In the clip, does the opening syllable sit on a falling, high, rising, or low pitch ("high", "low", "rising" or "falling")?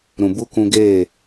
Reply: low